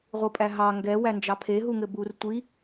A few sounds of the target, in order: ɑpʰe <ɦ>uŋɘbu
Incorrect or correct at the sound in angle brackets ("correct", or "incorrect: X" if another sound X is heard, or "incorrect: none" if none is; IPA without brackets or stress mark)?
correct